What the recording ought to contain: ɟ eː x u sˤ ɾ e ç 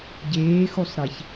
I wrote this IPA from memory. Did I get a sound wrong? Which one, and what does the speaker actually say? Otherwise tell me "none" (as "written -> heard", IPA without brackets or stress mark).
none